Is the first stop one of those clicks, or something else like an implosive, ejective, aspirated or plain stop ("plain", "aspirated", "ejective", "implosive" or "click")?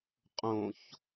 ejective